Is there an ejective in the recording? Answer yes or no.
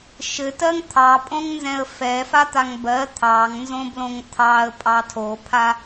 yes